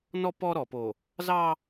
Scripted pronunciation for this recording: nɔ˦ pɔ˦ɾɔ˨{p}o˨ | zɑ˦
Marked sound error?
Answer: no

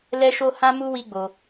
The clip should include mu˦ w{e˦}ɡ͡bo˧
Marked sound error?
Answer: yes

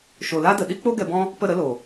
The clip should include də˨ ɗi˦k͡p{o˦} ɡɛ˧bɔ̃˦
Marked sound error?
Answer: no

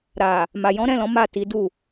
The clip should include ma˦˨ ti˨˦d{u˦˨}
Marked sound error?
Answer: no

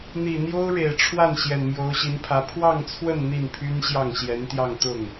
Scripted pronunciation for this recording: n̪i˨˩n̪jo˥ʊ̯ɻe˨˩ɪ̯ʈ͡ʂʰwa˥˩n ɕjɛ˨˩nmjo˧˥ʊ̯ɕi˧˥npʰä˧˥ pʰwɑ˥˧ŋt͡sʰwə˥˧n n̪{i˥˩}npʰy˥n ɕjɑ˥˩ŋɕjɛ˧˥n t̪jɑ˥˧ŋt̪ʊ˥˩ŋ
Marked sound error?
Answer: no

